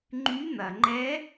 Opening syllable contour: rising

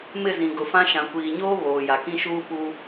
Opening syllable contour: falling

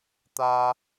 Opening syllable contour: high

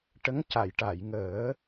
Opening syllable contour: rising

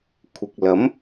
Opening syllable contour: low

